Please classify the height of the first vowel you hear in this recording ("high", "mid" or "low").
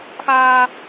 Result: low